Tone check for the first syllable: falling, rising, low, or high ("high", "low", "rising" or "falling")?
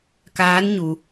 rising